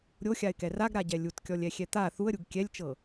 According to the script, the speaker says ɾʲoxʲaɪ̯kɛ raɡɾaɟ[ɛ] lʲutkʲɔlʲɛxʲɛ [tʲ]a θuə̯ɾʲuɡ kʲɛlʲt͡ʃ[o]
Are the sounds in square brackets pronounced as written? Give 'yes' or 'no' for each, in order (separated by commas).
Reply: yes, no, no